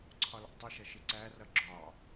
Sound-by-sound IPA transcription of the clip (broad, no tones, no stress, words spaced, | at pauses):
ǀʰɒlɑ̰tˤɪʃʌ ʃɪǀærʌ ɡ͡ǁɒ